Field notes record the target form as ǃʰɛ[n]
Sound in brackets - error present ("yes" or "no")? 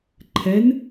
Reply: no